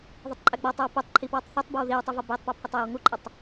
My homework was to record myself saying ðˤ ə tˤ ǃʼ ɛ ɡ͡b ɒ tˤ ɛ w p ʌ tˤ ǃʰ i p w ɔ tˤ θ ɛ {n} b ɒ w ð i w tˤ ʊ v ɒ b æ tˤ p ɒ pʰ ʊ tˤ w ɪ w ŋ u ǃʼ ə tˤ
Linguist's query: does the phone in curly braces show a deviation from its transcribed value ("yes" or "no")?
yes